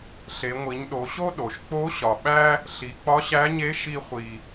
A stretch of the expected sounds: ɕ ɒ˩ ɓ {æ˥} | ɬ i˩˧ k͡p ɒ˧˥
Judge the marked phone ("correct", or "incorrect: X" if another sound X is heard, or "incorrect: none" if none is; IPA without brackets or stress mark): correct